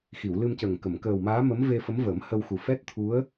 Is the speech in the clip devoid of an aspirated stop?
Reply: no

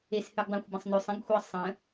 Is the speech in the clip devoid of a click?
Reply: yes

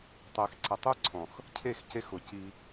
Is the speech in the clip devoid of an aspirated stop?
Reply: no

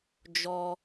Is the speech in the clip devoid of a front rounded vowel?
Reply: yes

